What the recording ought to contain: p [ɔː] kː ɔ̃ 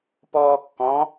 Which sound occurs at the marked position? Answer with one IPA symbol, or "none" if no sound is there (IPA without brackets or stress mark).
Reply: ɔː